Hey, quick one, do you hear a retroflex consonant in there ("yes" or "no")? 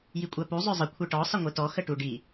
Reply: yes